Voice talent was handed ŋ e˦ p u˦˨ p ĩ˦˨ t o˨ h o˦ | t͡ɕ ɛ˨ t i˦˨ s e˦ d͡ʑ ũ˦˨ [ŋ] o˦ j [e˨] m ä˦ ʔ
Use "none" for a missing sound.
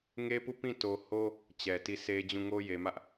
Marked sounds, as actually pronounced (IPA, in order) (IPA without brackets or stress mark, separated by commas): ŋ, e˨